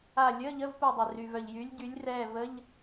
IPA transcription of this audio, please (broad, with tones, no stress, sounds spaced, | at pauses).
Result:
a˦˨ lʲ əː˧˥˧ ʎ ə˧˥˧ v p u˦˨ dˤ e˩ r y˩ v œ˩ ʎ j y˨˦ lʲ ɟ y˨˦ lʲ r ɛː˦˨ v ə˧˥˧ ʎ